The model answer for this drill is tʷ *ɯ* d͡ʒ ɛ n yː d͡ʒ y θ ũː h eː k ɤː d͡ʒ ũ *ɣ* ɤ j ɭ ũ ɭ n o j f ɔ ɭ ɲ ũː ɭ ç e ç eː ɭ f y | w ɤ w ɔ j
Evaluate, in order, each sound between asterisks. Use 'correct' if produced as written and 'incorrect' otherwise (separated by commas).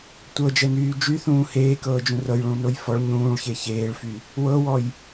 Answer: incorrect, incorrect